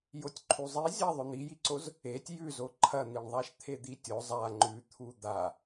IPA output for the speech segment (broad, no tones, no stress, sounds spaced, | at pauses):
j o tʲ ǃʰ u zˤ i zʲ a ðˤ ɵ n̪ i j i ǀ o z | e tʲ j ʉ z o ǃʰ ɐ n̪ i ɳ ðˤ a ʃ t̪ʰ e d̪ i tʲ o zˤ a ŋ͡ǃ ʉ t̪ʰ u d̪ a